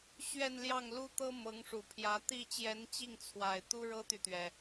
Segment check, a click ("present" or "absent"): absent